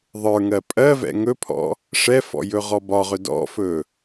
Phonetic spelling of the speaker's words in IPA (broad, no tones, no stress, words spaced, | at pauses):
ðˤə˞ŋɜ pʼɜvɛ̰ ŋɵpʰɔ̰ | ʂɛfɔ̰ jɵʁɔbɒʁɵ dɔ̰fɵ